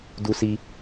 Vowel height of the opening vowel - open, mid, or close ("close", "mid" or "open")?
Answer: close